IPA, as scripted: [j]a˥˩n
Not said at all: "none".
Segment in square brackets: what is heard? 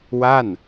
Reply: w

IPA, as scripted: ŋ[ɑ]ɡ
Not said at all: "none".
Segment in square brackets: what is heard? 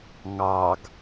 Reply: ɑ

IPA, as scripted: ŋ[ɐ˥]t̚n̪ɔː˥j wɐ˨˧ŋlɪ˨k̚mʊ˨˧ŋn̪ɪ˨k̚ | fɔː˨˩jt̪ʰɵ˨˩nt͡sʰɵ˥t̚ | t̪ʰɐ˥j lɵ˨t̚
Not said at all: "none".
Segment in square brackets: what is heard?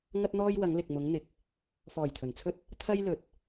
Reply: ɐ˥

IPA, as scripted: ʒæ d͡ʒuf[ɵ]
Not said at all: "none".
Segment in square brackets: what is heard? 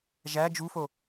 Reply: o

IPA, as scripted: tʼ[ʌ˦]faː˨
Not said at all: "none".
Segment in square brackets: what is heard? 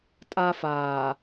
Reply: a˦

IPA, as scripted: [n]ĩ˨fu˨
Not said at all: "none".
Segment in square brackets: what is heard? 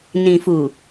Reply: n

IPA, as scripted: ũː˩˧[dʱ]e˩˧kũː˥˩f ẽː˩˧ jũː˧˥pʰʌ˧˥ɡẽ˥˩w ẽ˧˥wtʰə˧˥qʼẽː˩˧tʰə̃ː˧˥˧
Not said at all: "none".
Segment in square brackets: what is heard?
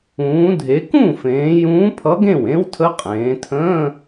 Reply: dʱ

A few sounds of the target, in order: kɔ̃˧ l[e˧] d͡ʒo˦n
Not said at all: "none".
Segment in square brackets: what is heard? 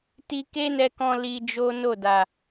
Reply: i˧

